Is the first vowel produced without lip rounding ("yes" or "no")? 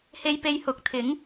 yes